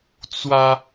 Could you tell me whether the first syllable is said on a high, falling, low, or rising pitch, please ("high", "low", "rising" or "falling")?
high